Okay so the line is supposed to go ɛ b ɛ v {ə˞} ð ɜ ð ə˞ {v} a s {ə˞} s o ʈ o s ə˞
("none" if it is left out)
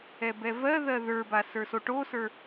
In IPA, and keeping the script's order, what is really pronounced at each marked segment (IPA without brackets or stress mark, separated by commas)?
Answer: ɜ, b, ə˞